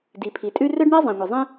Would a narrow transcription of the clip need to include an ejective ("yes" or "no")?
yes